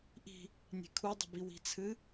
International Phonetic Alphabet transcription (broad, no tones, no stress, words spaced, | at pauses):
ʔi̤ | nʲe̤kʰudˤə̤bi wi̤t͡sʰɨ